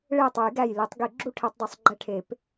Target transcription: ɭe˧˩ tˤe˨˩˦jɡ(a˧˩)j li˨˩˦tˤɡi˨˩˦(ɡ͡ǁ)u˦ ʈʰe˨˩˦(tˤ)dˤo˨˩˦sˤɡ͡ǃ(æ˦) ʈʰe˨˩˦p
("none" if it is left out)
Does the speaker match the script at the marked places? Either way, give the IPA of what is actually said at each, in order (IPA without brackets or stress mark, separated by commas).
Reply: æ˧˩, ɡ͡ǁ, tˤ, æ˦